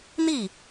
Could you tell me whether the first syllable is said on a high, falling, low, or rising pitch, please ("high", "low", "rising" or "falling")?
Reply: falling